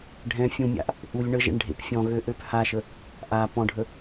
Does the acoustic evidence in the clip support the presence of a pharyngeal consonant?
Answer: no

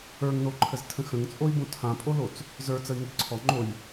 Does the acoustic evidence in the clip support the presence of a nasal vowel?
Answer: yes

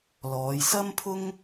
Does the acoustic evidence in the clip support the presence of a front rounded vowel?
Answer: no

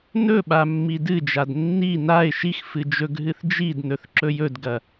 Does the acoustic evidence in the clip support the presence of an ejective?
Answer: no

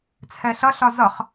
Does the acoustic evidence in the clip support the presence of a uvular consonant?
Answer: yes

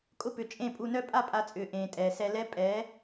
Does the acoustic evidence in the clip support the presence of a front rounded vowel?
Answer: yes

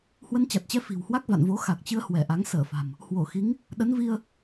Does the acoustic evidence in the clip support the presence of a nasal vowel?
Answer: no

